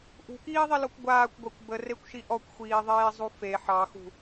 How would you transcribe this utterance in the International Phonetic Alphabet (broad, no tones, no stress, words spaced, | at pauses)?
ʔṳkiːðˤilɔkʷ ɡʷaːkʷɡʷakʷ bərekʷʃi ʔɔkʷxʷiːðˤeːzˤu fe ħɑxṳ